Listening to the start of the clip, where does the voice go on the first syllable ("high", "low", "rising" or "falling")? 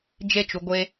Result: falling